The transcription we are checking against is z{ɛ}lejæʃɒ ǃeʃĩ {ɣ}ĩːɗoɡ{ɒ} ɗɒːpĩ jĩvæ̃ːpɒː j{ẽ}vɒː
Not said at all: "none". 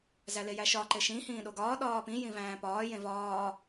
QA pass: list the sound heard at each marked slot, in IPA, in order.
æ, h, ɒː, ẽ

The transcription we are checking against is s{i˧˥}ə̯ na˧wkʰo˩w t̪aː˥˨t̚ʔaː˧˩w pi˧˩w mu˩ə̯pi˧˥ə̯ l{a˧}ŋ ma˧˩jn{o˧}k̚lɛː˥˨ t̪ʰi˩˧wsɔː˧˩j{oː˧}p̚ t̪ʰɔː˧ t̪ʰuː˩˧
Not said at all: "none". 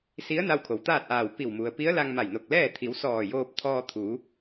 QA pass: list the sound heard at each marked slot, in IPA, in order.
i˧˥, a˧, o˧˩, oː˧

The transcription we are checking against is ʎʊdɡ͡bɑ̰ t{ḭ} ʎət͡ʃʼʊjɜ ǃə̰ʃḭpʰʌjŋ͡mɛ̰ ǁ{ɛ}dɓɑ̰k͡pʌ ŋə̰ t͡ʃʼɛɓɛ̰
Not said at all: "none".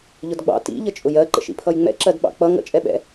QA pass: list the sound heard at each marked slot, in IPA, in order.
ḭ, ɜ

